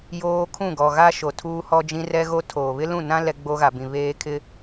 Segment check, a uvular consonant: absent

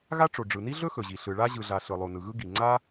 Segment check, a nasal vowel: absent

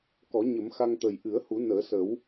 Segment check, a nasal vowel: absent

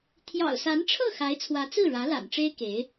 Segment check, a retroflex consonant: present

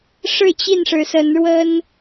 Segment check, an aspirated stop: absent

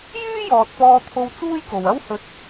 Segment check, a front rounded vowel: present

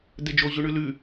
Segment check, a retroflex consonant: present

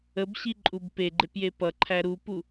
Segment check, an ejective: present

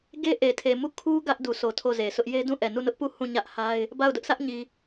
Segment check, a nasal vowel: present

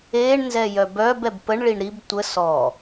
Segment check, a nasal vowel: absent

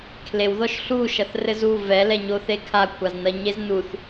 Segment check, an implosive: absent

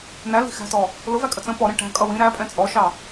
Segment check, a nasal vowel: present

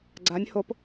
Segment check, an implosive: absent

